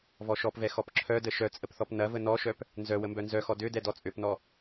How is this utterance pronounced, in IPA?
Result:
vɔʃɔpvɛ xɔpǁʰœdə ʃœt͡sʼəp θɔpnɐvə nɔʃœp | nzœ wəmbœnzœxɔ dødɛ dɔt͡sʼøpnɔ

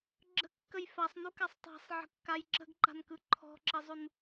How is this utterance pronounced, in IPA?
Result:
ɡ͡ǁə̤kːəj fasˤnukasˤ tˤa̤sˤʕə̤kːaj ǁə̤ɡǃa̤nkɯ ǃʰɔ̤ǁɪzˤun

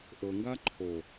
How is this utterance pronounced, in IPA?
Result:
ʔɤŋɡa ǃʰo

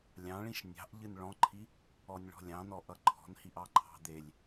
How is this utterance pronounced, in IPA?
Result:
lʲɑ̃ɭĩʃ nʲɑ̤ʔ ʎɨnɭɔ̃ǃʰi | ɔnʲɭɔ̤lʲɑ̃nɔ ʔʌǃʰɔ̤nhiʔɑ ǃʰɑ̤d̪elʲ

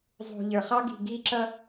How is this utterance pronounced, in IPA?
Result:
zˤṳ˨ʎə˞˨χ ɑ˦ɡi̤˨ɡi˦ǁʌ˦

